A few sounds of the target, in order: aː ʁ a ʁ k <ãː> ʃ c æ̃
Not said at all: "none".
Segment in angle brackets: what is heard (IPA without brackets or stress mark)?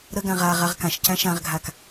ã